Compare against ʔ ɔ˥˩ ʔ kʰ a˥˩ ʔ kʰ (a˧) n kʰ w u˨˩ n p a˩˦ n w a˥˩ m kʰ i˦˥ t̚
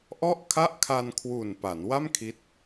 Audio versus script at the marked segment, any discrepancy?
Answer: no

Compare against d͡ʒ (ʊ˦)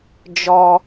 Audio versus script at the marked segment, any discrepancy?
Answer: yes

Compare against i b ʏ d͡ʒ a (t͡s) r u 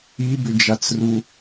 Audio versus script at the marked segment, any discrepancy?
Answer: no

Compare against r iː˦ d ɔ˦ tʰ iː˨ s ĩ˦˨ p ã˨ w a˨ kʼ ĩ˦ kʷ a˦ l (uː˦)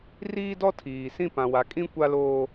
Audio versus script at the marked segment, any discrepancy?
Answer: yes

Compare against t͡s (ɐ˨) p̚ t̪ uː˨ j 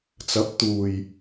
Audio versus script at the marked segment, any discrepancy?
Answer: yes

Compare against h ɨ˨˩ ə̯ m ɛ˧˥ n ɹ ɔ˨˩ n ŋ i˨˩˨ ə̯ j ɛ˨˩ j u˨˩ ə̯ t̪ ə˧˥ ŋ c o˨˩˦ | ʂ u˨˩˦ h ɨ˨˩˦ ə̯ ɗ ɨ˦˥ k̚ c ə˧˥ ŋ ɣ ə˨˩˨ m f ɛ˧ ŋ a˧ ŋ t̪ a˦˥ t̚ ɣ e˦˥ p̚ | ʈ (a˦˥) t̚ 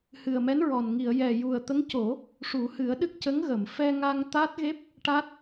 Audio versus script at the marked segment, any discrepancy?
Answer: no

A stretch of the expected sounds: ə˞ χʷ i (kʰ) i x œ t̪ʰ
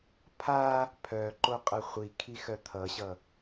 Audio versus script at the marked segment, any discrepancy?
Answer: no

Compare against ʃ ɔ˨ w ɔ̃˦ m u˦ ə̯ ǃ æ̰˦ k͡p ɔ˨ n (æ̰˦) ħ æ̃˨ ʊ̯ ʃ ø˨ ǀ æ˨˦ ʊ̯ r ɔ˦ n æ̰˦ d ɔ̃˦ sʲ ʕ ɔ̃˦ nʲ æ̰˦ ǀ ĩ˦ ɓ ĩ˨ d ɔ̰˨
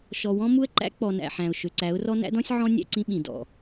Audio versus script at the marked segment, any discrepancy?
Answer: yes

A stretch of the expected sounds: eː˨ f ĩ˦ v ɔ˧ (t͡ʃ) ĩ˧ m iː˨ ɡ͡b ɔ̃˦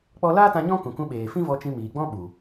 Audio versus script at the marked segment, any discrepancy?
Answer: no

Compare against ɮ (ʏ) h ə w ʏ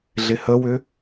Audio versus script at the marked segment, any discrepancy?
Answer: yes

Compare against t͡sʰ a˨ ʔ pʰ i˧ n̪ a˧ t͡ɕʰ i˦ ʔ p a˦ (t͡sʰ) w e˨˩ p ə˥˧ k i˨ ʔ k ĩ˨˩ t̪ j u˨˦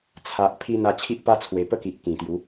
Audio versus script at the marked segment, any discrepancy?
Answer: no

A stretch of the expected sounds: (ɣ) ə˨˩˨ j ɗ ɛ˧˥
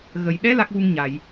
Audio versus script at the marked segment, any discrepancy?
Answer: no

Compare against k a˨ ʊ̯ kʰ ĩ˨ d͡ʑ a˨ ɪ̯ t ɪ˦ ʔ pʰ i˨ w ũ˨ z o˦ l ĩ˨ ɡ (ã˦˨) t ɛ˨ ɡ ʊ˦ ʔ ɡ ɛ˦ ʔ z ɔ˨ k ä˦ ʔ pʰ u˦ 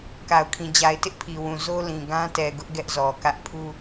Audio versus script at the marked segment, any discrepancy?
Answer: yes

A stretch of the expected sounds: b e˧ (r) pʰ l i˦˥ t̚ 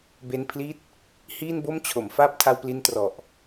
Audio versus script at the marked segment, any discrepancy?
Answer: yes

